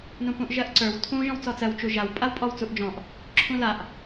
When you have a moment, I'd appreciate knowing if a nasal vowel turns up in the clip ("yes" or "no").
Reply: yes